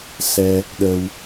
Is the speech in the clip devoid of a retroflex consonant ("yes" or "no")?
yes